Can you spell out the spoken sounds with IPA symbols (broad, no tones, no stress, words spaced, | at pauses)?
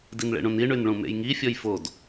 dinɭḛɳũni ɳynɭũmḛjŋi fʲɔjfod